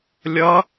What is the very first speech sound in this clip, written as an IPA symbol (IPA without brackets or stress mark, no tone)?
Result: lʲ